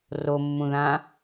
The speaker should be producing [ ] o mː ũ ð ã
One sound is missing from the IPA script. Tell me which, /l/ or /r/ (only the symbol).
r